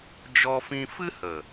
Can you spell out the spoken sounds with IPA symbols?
d͡ʒɔ˧fĩ˧fɨ˦hə˨

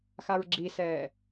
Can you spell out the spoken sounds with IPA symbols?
xaɹɡ͡ǁisɛː

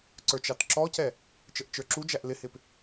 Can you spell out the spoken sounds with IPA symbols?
ǀə˞t͡ʃɑtǁɔcɛ | t͡ʃəʔt͡ʃə˞ǁud͡ʒæʔ lɪhɪp

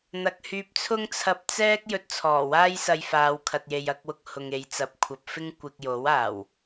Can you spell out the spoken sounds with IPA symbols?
n̪ɐ˨k̚hyː˧p̚t͡sʰʊ˥ŋ t͡sʰɐ˧p̚t͡sɛː˥k̚ jɵ˧t̚t͡sʰɔː˨˩waː˥jsɐ˧j faː˨˧wkʰɐ˨t̚je˨j ɐ˧k̚wʊ˧k̚ hʊ˨ŋe˨˧j t͡sɐ˨p̚kʷʰɐ˨p̚fɪ˥ŋ kʷɪ˧k̚jo˨˥waː˨˩w

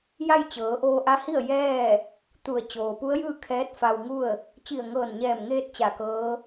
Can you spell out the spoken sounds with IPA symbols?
ja˥˨jt͡ɕɤː˩˧ʔoː˧ ʔa˧˥hi˥˨ə̯ jɛː˥˨ | t̪u˧˩ə̯ t͡ɕoː˩pu˧˥ə̯jɯː˥˨ kʰɛː˧˥t̚ fa˧wŋu˥˨ə̯ | t͡ɕi˧˩ə̯ŋɤː˧˩nɲɛː˧˩mŋeː˧t̚ t͡ɕa˧˩kɤː˧˥

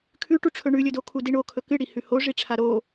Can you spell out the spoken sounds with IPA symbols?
kʰʉʈuʈ͡ʂʰɵ ɳʉlʲɵdo kʰudiɳokʰɵ kɨɽi hʉhoʐiʈ͡ʂʰa ɾo

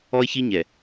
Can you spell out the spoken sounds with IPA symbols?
ɔ˦ɪ̯çi˦ɲɛ˨

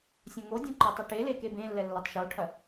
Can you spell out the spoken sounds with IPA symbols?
sʲõŋodʲõ ǃɔtˤɐʈele kebẽlːɛ lːɐtˤʃoʈʰɐ

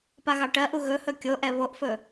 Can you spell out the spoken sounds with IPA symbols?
paɣɑʈɜʔu ɣɵhɵ kʲoʔɛ βoʔfɵ

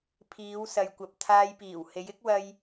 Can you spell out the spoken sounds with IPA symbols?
pʰiː˨˧wsɐ˨jkʷɐ˨p̚ t̪ʰaː˧jpiː˨˩w he˨˧jɪ˨˥k̚wɐ˧j

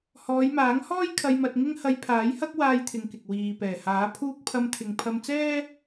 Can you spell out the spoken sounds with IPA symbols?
hɔː˨˧jmaː˨˥ŋhɔː˥j kʰɐ˧jmɐ˧t̚ŋɪ˥ŋ hɐ˧jpʰaː˨˥jhɐ˥k̚ waː˥jt̪ʰɪ˧ŋkɪ˨k̚ wiː˨ pɛː˨˩haː˨˥ pʰuː˥k̚ pʰɐ˧mt̪ʰɪ˨ŋpʰɐ˧m t͡sɛː˥

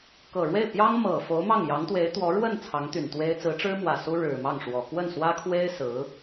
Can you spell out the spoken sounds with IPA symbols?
kɤ˨˩ɻwe˥˩ɪ̯ pjɑ˥ŋ mɤ˨˩ fo˧˥ʊ̯mɑ˥˩ŋ jɑ˧˥ŋt̪we˧˥ɪ̯ t̪wɔ˧˥ ɻwə˥˩n t͡sʰɑ˧˥ŋt̪y˨˩nt̪we˥ɪ̯ t͡sɹ̩˧˥ʈ͡ʂɻ̩˥mwä˨˩ su˥ɻɻ̩˨˩mɑ˥˩ŋʂwɔ˨˩ kwə˥˩nswä˥kʰwe˥ɪ̯ sɹ̩˧˥

